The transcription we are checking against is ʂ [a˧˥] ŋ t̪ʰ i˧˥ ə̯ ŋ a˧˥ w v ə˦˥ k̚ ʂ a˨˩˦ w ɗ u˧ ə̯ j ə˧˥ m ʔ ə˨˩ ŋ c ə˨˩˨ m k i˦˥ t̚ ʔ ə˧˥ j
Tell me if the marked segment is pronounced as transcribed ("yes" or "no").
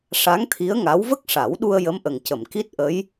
yes